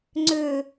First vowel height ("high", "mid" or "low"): mid